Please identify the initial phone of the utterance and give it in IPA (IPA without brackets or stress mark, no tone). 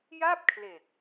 j